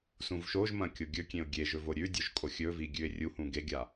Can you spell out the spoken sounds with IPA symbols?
s ũ v ʃ o ʒ m ɐ̃ kʲ o ɡʲ ɵ kʲ ẽ ʊ̯ ɡʲ e ʒ ɵ v o ɾʲ ʉ dʲ ɵ ʒ kʼ o xʲ ɵ v i ɡʲ ʉ ɪ̯ rʲ u h ũ ɡ e ɡʲ a

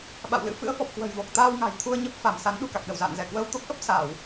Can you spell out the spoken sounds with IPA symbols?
ɓ a̰˧˨ w l ɨ̰˧˥ f ɨ̰˧˥ ə̯ f ɔ˨˩ p̚ k w ə̤˨˩ j v o˨˩ k̚ t̪ aː˧ w ŋ a̤˨˩ j t̪ʰ u˧ ə̯ ɲ ə˦˥ p̚ f a˧˩ m s a˨˦ n ɗ ṳ˨˩ k a˨˩ k̚ ɗ ə˧˩ w z a̰ː˧˨ n z ɛ˧˩ k w əː˧ w t̪ o˦˥ k̚ ʔ ə˦˥ p̚ s aː˧˩˨ w

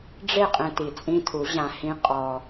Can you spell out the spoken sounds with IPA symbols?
ɖ͡ʐ e˦˨ qʼ ẽ˧ t i˨ t͡sʼ ĩ˦ tʰ u˨˦ ʑ ã˧ h ĩ˦ qʼ ɔ˧

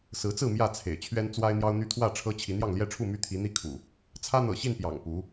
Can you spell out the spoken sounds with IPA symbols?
s ɹ̩˨˦ t͡s ɹ̩˥˨ m j ä˥˨ t͡sʰ ḛ˨˩ ɪ̯ t͡ɕʰ ɥ ɛ˦ n t͡s w a˦ ɪ̯ n̪ j ɑ˦ ʊ̯ n̪ y˦ t̪ʰ w ä˥˨ ʈ͡ʂʰ ɤ˦ t͡ɕʰ i˨˦ n̪ j ɑ˥˨ ŋ l j ɛ˥˨ ʈ͡ʂʰ u˥˨ m y˦ t̪ʰ i˨˦ n̪ i˦ kʰ ṵ˨˩ | t͡sʰ ä˦ n̪ ɤ̰˨˩ ɕ i˥˨ n p j ɑ̰˨˩ ŋ p u˨˦

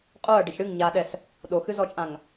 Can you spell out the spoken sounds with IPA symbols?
qʼ o ɐ̯ ɖ ə ç ɽ ɨ ŋ ɲ a ɗ ɛ s | ɗ o x ɨ z ɔ t͡ʃʼ ã ŋ

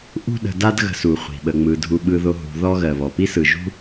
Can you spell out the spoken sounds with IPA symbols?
ʔ ṳ˦ ɗ ə̤˨ d a˦ d ɣ ə̤˨ s u˩ χʷ i̤˩ ɓ ə˩ ŋ͡m ɯ˩ dʱ u˨ ɓ ɯ˨ ð o˨ ɦ ṳ˨ ð ɔ˦ ɣ ɜ˩ β ɔ˩ p i˥ s ɯ˩ ʒ ṳ˥

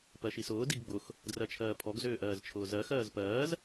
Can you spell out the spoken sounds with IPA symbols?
p ɜ ʃ i s ʊː d i ɡ ɡ͡b ʊ x | d r ɜ t͡ʃʰ ɜː pʰ ɔ ɡ z ʏː ʔ ɜː z t͡ʃʰ ʊː z ɜ x ɜː z p ɜː z

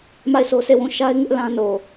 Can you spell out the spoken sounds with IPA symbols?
m a˦˨ ɪ̯ s o˦ s e˦˨ w ũ˦˨ ʃ a˦ ɪ̯ ŋ ɪ˦ ʔ l ã˦ n o˨

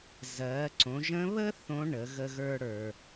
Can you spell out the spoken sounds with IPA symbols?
z ɜ˩˧ ǀ õ˩˧ ʒ ə̃˧˥ β ə˥ θ õ˧˥ ɳ ə˩˧ ɣ ə˧ ɣ ə˞˧ ɽ ə˞˩

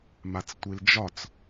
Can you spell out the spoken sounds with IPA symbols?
m a t͡s tʷ i l d͡ʒ ɒ t͡s

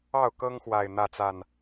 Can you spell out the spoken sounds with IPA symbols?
ɑ˥˨ ʊ̯ k ɤ˦ ŋ x w a˨˩ ɪ̯ n̪ ä˥˨ t͡s a˥˨ n

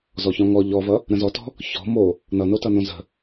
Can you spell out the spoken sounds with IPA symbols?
z ɔ ç ɔ̃ ŋ ɔ ʎ ɔ v ʌ | ɾ ə̃ z ɔ t ɔ̤ | ç ɔ̤ m o | n ʌ n o t ʌ n õ z ə̤

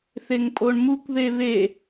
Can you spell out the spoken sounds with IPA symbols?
θ e ŋ pʼ o ɳ m u kʷ ð e β e

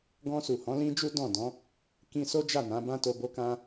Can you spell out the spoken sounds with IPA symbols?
ɡ ɔ̃˧ s u˨ h ɔ̃˨˦ l ĩ˦ d͡ʒ u˦ d ɔ̃˦˨ d ɔ̃˨˦ | k ĩ˧ s o˦ d͡ʒ a˦˨ n ã˨˦ b ã˦ t o˧ b o˦ k ã˦

